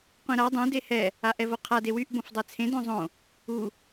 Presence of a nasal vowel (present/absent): present